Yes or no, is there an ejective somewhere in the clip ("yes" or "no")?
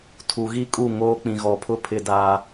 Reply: yes